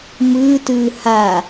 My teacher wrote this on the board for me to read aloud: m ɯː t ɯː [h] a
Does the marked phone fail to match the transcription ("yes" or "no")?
no